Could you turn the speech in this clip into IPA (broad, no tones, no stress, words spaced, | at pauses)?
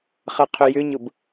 χɐqʰʏjʏɲʊb